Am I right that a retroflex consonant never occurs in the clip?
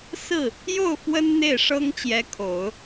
no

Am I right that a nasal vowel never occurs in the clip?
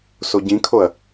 no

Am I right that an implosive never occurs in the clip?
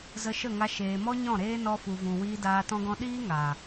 no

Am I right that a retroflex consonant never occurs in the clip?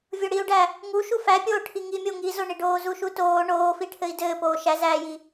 no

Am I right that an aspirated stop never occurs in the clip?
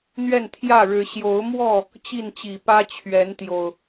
no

